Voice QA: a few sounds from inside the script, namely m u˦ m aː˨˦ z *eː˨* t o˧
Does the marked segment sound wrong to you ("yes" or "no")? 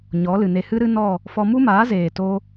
no